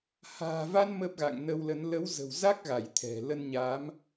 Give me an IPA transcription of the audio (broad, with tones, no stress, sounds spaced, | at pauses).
h a̤ː˨˩ v a˧ n m ə˦˥ p̚ ɣ a̰˧˨ ŋ n ə˧ w l ə˨˦ n l ə˨˦ w z ə̤˨˩ w z a˦˥ k̚ ɣ a˧˩ j t̪ʰ ɛ̤˨˩ l ə˧ n ɲ a˨˦ m